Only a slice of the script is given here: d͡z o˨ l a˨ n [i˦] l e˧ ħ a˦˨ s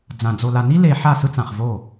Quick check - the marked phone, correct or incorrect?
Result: correct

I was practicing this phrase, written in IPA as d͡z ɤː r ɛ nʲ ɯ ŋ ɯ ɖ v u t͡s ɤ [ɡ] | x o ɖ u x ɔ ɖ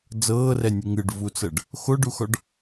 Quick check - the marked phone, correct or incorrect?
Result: incorrect: ɖ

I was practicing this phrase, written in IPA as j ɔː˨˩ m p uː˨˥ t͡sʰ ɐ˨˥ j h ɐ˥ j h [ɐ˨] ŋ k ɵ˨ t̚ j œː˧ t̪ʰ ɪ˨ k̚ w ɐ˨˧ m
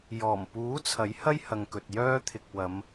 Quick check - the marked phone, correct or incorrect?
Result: correct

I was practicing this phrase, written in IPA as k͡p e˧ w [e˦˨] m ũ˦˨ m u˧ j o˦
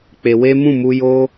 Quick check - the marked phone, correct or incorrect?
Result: incorrect: e˦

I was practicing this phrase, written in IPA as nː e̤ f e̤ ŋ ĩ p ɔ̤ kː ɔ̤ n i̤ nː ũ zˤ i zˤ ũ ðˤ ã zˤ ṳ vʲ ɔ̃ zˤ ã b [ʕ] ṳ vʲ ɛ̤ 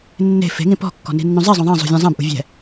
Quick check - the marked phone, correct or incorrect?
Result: incorrect: ʔ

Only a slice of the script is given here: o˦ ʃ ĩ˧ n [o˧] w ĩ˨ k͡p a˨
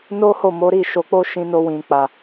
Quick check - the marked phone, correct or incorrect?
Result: correct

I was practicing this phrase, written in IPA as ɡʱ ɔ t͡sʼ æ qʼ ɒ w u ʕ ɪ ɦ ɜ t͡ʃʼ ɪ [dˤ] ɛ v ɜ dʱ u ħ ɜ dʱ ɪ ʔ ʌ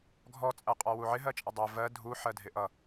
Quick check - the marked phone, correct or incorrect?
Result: correct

